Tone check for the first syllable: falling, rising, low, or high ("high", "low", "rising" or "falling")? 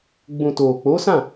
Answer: low